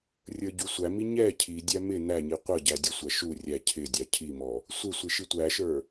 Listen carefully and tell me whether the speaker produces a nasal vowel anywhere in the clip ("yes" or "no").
no